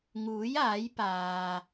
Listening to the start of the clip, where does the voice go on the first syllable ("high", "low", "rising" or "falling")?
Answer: rising